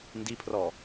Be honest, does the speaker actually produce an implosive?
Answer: no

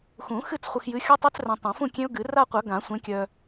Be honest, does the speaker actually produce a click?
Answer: no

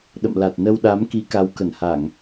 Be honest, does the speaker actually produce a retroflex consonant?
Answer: no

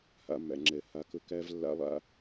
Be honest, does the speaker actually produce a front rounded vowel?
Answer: no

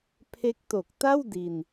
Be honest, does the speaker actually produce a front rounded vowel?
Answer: no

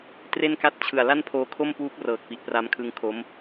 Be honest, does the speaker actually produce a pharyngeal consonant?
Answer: no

